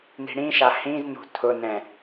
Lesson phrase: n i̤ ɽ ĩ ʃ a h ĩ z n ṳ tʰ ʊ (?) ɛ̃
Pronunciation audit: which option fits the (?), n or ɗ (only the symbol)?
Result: n